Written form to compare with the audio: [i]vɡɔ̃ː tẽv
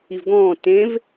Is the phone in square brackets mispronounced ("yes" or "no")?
no